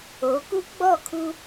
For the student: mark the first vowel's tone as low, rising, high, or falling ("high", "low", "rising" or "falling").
rising